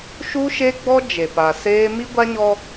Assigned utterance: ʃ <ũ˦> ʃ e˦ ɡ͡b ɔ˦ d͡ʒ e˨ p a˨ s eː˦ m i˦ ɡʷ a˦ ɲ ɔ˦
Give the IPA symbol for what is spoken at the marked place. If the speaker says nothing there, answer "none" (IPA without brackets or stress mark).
u˦